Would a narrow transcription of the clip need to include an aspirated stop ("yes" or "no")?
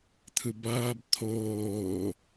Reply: yes